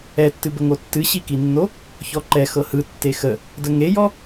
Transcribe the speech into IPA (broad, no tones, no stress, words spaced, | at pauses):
ɛtːɨbəŋo tːɨɕikinːo | çɔǃɛ xɤhɯ tːexə | dəŋejɔ